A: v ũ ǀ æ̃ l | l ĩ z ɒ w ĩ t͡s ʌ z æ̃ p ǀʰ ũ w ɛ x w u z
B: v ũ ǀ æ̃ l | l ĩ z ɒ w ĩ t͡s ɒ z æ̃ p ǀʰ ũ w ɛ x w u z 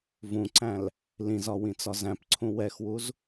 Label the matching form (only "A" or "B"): B